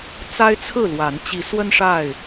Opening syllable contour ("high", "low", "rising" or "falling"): high